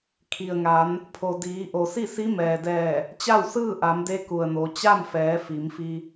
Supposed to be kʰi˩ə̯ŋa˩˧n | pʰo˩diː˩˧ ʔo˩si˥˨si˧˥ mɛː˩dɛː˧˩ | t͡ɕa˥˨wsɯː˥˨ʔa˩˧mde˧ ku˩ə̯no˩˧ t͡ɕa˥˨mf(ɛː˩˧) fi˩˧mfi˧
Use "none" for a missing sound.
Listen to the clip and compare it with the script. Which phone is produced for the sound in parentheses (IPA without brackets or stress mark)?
ɛː˩˧